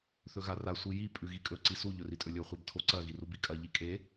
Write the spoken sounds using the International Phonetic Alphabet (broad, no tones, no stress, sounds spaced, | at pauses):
θ ɵ ɣ a r a sʷ i j i pʼ ʉ ɣ i kʼ ɵ ǀ i s u ʎ ɵ r i tʼ ɵ lʲ ɵ χʷ e b tʰ o ǀ ɐ ɣ i r u b i kʼ ɐ ʎ i kʼ e